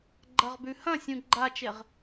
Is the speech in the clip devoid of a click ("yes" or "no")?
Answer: no